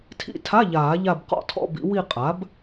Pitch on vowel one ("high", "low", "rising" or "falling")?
falling